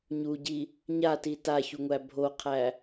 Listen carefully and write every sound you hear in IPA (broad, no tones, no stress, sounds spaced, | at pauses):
ɲ u ɟ i | ɲ a t i t a ç u ŋʷ æ bʱ o qʰ æ